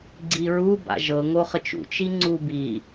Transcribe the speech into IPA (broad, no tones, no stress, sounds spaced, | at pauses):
ɡ͡ǀ i ɹ u b a̰ ʒ ɤ ŋ o χ ə t͡ʃ ṵ t͡ʃ i ŋ͡ǀ u b i